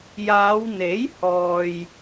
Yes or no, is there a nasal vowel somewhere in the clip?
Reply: no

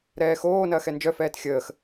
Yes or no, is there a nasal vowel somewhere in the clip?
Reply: no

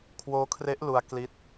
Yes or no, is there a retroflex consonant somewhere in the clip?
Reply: no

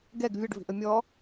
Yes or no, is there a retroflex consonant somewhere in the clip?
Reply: yes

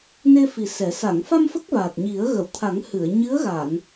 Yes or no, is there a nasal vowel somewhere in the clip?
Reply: no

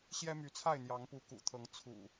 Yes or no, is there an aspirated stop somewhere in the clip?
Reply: yes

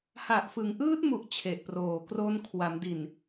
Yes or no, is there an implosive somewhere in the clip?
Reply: no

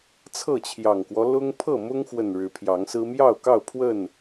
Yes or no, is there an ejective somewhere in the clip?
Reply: no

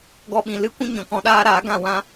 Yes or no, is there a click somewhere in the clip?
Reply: no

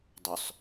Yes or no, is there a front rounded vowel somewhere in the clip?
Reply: yes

